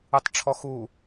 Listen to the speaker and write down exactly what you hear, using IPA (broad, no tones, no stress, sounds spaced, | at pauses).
ɯ tˤ ʈ͡ʂʰ ɔ x u